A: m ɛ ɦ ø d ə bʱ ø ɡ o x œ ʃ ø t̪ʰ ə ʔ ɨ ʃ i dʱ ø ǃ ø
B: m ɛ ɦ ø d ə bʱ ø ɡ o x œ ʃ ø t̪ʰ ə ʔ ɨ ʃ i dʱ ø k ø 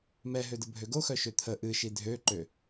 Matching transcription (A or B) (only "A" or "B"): A